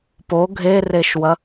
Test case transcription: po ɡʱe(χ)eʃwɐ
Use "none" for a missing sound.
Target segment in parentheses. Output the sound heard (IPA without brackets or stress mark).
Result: r